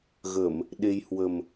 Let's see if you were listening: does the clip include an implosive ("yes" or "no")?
yes